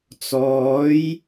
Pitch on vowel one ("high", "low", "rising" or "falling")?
rising